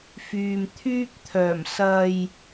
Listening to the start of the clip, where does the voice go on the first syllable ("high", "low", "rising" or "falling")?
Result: low